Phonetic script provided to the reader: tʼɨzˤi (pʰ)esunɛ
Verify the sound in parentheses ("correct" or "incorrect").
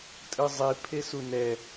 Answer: correct